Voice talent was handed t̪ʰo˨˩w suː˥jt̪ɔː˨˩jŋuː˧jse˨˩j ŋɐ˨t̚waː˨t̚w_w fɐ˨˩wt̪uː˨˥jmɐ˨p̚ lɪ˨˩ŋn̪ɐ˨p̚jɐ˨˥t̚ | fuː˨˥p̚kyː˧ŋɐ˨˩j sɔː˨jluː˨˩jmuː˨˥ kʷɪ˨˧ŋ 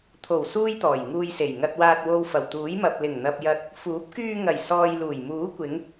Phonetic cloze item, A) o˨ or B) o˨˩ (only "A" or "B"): A